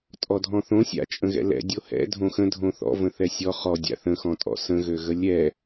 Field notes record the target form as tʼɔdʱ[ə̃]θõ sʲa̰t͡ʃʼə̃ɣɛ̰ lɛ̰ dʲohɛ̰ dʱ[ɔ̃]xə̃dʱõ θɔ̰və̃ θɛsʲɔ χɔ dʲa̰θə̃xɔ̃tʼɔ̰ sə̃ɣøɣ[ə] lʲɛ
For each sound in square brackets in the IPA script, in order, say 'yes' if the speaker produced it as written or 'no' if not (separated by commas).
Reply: no, no, yes